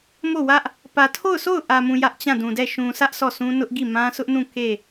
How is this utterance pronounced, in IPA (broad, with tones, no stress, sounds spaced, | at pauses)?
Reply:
m o˦˨ w ä˦ ʔ | p ä˨ tʰ o˦˨ ʊ̯ sʰ o˦˨ ʊ̯ ʔ ä˨ m ũ˨ j ä˦ ʔ t͡ɕ ã˦˨ d ũ˨ d ɛ˦˨ ʃ ũ˨ sʰ ä˦ ʔ s ɔ˦˨ sʰ ũ˦ n ʊ˦ ʔ ɡ i˦˨ m ã˦ s ʊ˦ ʔ n ũ˦˨ k e˦˨